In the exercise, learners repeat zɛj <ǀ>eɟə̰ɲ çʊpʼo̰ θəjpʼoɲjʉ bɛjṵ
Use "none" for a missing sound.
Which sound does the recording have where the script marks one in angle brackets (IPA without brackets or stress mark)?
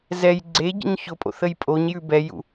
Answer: ɡ͡ǀ